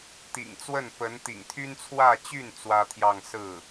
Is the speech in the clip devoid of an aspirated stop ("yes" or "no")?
no